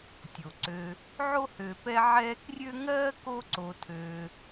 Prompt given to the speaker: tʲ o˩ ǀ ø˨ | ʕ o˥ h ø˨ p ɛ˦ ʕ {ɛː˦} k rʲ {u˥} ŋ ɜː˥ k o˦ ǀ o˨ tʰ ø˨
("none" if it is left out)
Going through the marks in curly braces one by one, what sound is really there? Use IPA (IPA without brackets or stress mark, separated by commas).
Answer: ɛː˦, ø˥